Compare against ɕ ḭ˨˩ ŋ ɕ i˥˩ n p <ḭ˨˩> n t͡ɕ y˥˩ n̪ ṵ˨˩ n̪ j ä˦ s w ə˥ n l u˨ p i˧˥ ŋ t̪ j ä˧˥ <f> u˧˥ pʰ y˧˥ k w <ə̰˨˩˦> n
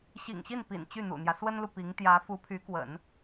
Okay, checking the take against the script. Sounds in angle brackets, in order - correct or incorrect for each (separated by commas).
correct, correct, correct